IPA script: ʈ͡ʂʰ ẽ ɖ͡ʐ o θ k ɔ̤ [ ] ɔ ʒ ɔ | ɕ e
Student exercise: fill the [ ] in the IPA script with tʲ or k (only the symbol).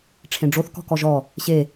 k